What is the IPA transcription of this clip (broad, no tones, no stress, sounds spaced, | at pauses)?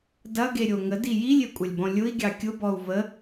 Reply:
d ɐ ɡ e ɾʲ o ŋ ə d i j i lʲ e kʷʼ ɐ lʲ b ɔ̃ lʲ ʊ i̯ ɡʲ ɑ kʲ ʊ b ɔ u̯ v ə